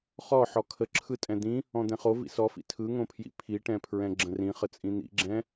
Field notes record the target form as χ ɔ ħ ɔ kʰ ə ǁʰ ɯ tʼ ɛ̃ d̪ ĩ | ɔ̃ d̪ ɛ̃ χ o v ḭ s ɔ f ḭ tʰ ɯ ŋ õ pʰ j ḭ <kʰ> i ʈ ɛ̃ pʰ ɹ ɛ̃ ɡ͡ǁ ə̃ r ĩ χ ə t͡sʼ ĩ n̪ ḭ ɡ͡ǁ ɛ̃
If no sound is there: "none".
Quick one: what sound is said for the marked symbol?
pʰ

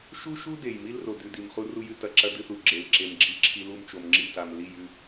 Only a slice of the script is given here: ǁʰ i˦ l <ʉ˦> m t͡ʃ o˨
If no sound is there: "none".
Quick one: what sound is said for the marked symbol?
u˦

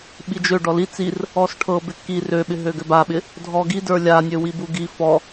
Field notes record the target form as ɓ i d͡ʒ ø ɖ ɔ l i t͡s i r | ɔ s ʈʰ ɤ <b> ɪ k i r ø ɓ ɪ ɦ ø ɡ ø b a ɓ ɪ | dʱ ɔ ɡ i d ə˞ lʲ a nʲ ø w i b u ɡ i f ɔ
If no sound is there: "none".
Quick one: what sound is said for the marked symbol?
b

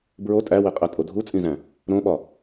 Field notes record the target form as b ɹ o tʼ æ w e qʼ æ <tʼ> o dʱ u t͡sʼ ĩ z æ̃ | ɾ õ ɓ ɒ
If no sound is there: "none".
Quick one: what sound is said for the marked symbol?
tʼ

